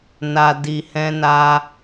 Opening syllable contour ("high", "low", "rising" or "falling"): low